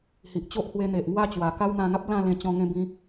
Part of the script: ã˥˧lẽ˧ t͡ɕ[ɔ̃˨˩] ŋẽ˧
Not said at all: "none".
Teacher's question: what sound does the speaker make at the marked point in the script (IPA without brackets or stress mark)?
ɔ̃˧